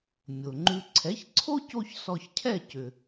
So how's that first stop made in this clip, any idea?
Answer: click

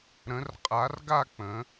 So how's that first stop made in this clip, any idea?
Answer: ejective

